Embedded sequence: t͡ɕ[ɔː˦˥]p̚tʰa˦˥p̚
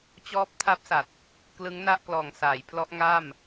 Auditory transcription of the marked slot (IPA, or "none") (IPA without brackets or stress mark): ɔː˦˥